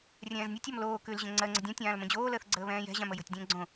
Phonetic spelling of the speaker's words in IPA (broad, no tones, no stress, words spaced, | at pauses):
rʲɛ̃ːznʲɔtʲɔm loː kʉlʑə̃ ŋ͡ǀɜŋ͡ǀə dʲõtʲãːl mə̃d͡ʑoːləːθ ɡ͡ǀəːβɛ̃ːjɛ̤ʑãm əjə̤tʲdʲə̃ː ɡ͡ǀõ